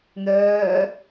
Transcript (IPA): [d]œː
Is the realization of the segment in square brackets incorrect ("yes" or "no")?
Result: yes